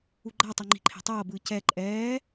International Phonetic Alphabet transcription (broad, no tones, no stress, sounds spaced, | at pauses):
u ɡ͡ǃ a tˤ o ŋ͡ǃ i̤ ǃʰ e̤ tˤ ʌː b ɯː c ɛ ǃʼ ɛː